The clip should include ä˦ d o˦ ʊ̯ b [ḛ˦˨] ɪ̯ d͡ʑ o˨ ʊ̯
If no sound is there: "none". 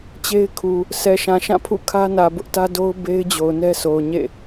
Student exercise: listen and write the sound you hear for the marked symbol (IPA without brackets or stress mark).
e˦